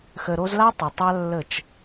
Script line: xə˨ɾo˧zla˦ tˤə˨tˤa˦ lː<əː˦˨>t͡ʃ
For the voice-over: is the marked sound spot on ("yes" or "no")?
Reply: no